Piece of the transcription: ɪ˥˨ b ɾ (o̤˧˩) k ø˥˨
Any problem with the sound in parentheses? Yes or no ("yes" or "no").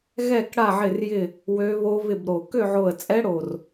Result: yes